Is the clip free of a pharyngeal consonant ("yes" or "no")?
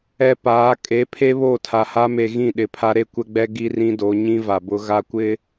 yes